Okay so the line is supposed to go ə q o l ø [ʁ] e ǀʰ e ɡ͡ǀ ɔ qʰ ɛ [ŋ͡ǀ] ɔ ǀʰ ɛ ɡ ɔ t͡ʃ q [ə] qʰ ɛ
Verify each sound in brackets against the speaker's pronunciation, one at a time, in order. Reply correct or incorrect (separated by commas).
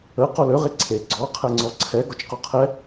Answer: correct, correct, incorrect